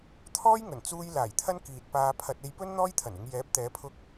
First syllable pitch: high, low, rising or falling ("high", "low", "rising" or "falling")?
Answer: high